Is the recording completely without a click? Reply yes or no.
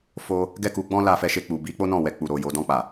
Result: yes